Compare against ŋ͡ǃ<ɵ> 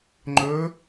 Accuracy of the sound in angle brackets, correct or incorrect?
correct